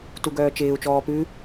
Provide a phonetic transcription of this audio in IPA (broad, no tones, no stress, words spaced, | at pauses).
tuɡœːt͡ʃɪːu̯ t͡ʃɔːpʉ